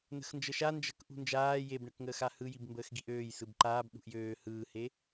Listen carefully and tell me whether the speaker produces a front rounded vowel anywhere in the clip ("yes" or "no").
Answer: yes